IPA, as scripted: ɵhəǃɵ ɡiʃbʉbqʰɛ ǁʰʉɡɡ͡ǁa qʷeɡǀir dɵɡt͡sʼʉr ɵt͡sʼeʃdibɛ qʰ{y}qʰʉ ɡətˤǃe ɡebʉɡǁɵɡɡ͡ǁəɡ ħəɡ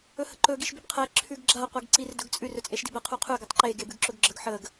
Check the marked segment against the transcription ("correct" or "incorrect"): incorrect